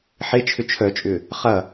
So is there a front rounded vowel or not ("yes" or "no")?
yes